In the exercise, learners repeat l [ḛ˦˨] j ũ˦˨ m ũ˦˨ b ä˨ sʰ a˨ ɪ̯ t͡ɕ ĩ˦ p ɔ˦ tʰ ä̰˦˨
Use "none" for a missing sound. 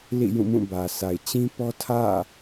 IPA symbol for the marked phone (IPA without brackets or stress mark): ḭ˦˨